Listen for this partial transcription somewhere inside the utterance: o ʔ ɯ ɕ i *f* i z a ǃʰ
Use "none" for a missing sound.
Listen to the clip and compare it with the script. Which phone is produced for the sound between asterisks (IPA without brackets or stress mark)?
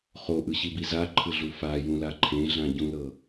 b